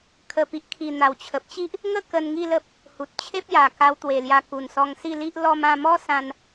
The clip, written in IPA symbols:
kʰ ə˨˩ p i˨ ʔ kʰ i˨˩ n̪ a˨˩ w t͡ɕʰ ə˨ p̚ t͡ɕ i˦ ʔ | ŋ ə˥˧ k ə˧ n ŋ i˥˧ l ə˦ p̚ | h u˨ t̚ t͡ɕʰ e˦ p̚ j a˨˩ k a˧ w t̪ w e˨˩ l j a˧ k u˨˩ n s ɔ˧ ŋ s i˥˧ l i˦ ʔ l ɔ˧ m ã˧ m ɔ˦ s ã˧ n

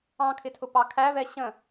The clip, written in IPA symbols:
ɑ̃ kʰ ɪ tʰ ʊ p ɑ kʰ æ v ɛ ɕ ə̃

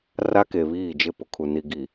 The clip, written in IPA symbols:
r a˦ k e˨ β iː˦˨ d͡ʒ ɪ˦˨ p ʊ˨ kʰ u˨ n i˨ ɡ i˨

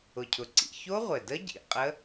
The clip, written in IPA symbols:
ʊ˨˩ cʰ ʊ˨˩ ǀ ḭ˨˩ ç o˦˥ ʁʷ ɘ˨˩ d ə˦˥ ɟ ḭ˨˩ qʼ ə˦˥

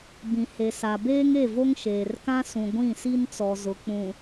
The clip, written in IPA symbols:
b ĩ˨ h e˨ s a˨ b eː˦ ŋ e˦˨ v o˦ ŋ ʃ eː˨ r k ã˦ s ũ˨ ɡʷ ĩ˦˨ s i˦ n t͡s ɔ˨ z ʊ˨ k͡p ũ˨

